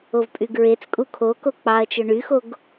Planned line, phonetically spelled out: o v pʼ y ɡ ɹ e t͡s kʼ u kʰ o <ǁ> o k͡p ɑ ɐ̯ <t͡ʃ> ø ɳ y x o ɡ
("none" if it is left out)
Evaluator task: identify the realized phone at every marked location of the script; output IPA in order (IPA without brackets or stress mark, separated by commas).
k, t͡ʃ